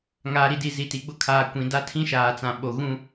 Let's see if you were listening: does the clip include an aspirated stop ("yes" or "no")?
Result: yes